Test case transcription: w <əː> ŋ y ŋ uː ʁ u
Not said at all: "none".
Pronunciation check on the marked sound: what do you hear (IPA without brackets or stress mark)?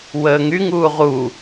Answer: əː